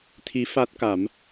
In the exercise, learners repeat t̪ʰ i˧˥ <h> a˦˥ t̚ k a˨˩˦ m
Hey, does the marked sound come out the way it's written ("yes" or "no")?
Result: no